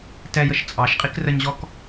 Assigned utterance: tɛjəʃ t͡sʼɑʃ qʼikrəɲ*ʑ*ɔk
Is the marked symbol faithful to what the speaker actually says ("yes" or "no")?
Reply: yes